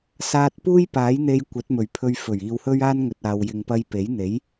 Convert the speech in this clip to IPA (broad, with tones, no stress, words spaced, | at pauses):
saː˧t̚puː˥j paː˨˥jn̪e˧j kʷɐ˨˥t̚mɵ˨˩ɥpʰɵ˧ɥ fɵ˨˩ɥ iː˨whɵ˥ɥ aː˥nŋɵ˨t̚aː˨w jɪ˨ŋpɐ˧jpe˨˥jn̪e˨˥j